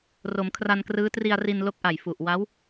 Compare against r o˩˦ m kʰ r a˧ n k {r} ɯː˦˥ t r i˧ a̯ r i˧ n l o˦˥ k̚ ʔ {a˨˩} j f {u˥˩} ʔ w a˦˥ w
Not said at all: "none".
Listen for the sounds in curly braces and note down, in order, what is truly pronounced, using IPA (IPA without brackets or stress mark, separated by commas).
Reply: r, a˨˩, u˨˩